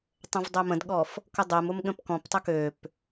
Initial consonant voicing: voiceless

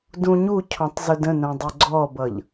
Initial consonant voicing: voiced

